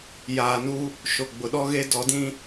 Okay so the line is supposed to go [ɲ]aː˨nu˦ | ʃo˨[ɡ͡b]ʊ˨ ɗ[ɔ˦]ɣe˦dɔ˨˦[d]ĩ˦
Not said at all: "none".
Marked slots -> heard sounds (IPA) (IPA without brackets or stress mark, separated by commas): j, ɡ͡b, ɔ˦, d